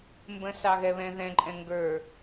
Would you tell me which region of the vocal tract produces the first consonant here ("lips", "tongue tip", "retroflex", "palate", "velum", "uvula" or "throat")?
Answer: lips